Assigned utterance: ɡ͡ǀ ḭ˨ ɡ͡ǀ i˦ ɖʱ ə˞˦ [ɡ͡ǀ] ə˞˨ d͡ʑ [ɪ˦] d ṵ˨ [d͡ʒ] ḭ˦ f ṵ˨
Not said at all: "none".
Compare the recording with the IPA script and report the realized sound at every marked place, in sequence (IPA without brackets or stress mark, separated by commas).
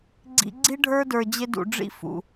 d, ɪ˦, ɖ͡ʐ